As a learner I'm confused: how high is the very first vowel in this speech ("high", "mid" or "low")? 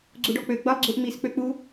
high